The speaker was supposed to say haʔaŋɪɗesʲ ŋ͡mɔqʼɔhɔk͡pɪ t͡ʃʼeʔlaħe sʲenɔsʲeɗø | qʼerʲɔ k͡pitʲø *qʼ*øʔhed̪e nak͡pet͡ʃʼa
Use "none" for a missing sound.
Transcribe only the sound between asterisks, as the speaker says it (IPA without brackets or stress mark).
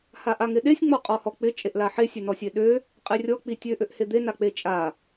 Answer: ʔ